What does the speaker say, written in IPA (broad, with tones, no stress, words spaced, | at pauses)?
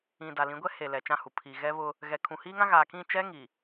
ĩ˨ da˨lĩ˨˦ɡʷɛ˦ he˨ lɛ˨t͡ʃã˦˨hu˨ pʰi˨ ɣɛ˦βʊ˦ | ɣɛ˨kʰũ˨hiː˦ŋã˦ ɣaː˨kĩ˦˨t͡ʃɛ˦ ŋi˨